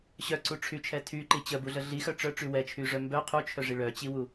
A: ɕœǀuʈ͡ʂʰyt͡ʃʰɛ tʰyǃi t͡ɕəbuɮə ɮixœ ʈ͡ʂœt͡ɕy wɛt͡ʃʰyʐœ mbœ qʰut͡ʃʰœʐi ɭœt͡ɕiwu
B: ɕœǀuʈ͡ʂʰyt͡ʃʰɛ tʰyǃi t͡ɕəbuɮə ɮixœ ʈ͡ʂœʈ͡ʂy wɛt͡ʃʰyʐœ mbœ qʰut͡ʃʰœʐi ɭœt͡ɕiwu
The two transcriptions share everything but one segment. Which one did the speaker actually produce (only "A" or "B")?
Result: B